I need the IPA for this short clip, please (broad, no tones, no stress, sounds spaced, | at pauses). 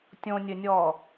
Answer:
tʲ õ nʲ ɘ nʲ ɔː